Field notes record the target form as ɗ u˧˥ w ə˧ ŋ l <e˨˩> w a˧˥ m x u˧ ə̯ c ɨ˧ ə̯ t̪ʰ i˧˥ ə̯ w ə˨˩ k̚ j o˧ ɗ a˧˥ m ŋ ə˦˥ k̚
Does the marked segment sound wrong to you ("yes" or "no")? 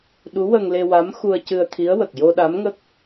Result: yes